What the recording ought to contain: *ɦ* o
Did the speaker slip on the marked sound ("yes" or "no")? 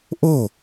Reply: yes